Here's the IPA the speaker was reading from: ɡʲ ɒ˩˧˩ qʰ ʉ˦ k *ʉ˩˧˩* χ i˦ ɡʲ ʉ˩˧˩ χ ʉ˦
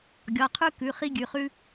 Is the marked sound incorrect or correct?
correct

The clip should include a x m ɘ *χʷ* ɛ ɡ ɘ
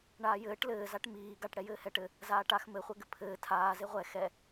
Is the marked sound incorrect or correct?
correct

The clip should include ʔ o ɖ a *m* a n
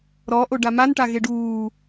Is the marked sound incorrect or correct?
correct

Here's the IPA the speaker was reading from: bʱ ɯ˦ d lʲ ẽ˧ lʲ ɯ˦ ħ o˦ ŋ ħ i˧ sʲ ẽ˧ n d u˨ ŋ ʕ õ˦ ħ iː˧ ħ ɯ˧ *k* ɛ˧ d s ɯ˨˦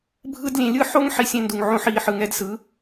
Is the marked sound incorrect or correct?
incorrect: ŋ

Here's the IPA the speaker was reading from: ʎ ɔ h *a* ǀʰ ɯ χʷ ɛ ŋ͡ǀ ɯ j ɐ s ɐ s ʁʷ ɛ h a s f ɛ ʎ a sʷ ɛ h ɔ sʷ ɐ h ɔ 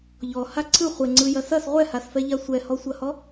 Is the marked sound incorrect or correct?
correct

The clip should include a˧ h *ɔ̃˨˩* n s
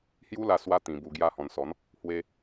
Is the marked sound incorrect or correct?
correct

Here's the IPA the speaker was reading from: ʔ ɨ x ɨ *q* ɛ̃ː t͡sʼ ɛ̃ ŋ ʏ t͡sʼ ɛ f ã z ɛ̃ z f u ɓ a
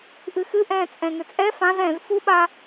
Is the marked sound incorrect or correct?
incorrect: ʔ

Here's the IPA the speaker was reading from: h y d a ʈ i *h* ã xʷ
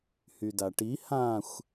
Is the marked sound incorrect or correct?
correct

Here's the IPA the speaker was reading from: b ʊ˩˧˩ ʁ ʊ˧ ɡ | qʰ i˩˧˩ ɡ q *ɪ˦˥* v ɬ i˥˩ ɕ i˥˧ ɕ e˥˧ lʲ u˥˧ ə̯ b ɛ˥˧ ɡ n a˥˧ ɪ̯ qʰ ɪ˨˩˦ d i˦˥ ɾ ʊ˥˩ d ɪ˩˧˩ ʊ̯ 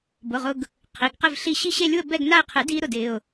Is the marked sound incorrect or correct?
incorrect: ɪ˥˧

